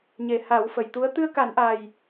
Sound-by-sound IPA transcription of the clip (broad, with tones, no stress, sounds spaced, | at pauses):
ɲ e˨˩ h a˨˩˦ w f ə˨˩ j t̪ u˧˥ ə̯ t̪ ɨ˧ ə̯ k a˨˩˦ n ʔ a˨˩ j